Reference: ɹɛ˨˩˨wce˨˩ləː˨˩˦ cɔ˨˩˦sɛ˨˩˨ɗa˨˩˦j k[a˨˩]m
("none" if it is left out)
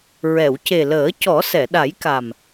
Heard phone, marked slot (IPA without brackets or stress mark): a˨˩